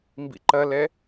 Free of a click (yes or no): no